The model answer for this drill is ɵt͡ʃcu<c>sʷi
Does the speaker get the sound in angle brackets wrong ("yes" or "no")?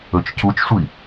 yes